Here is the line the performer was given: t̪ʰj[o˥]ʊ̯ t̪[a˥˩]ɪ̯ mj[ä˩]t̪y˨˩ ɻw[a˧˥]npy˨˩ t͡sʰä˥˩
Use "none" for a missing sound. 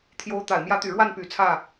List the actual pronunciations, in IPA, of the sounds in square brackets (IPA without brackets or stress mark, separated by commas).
o˧˥, a˨˩, ä˧˥, a˥˩